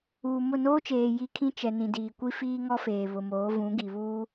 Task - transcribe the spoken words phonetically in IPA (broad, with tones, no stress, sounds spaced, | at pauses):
uː˨ m ʊ˦˨ n oː˦ t͡ʃ eː˨ j i˦ kʰ ĩ˦ t͡ʃ ɛ˨ n ĩ˨ d iː˨ kʷ i˦ f iː˦ ŋ ɔ˦ f eː˨ β ʊ˨ m oː˨˦ v ũ˨˦ ɡ i˨ β uː˦